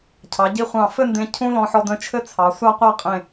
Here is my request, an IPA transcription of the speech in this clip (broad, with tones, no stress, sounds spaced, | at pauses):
cʰ ɑ˩˧ ɟ i˧ χʷ ɑ̃˧˩ f ɘ˥˧ n d ẽ˧ cʰ ũ˥ l ɔ̃˧ ħ ɔ˧ d ə̃˥˧ t͡ʃʰ ɘ˥ t͡sʰ ɑ˩˧ sʷ a˥˧ qʷ a˥˧ qʼ ẽ˧˩